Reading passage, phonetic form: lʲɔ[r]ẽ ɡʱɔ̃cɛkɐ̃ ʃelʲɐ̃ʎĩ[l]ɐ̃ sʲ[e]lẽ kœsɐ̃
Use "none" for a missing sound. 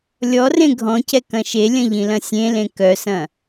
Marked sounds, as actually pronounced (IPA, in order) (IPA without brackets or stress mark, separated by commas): r, l, ẽ